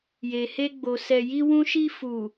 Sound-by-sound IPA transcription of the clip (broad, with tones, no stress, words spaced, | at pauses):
je˨he˧ɡ͡bo˨sɛ˨ ji˧wũ˧ʃi˧ fu˨